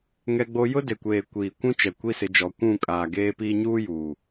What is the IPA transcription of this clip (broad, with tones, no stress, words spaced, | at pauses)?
ŋɛ˦ɡ͡bo˦ jʊ˦de˨kʷeː˨ kʷiː˨kʷũ˦t͡ʃɛ˨ kʷi˦sɪ˨˦d͡ʒɔ˨˦ kʷũ˦˨kʼaː˨ɡeː˦piː˦ ɲuː˦juː˨